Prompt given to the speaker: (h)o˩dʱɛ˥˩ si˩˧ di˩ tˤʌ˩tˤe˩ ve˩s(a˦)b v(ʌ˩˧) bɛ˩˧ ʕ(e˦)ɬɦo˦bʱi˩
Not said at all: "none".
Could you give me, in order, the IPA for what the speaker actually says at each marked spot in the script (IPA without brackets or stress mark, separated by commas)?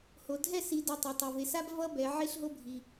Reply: h, a˦, ʌ˦, e˦